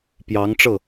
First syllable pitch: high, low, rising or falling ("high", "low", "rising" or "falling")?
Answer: rising